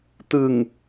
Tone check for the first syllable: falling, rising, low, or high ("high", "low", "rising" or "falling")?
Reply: low